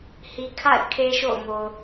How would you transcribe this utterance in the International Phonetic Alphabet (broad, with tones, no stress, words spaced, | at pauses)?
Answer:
hi˨kʰa̰˦˨ɪ̯ kʰe˦ʃo̰˦˨ʊ̯ mo˨ʊ̯